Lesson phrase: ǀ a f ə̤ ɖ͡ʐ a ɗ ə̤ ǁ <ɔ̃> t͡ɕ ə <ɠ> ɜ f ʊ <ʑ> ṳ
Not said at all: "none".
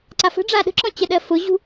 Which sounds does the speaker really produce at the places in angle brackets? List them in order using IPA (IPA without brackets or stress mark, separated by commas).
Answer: ɔ̃, ɗ, ʑ